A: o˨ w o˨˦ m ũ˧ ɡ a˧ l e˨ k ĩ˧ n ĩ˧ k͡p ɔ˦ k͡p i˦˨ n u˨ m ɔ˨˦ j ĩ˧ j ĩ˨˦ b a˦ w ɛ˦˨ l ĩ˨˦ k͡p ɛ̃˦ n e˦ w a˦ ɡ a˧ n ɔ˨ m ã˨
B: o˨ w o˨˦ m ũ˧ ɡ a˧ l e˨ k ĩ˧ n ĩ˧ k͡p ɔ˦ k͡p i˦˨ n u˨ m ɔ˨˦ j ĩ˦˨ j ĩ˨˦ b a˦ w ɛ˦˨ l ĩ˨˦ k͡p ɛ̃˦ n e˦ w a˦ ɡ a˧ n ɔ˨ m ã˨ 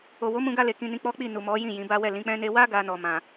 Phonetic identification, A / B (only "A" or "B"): B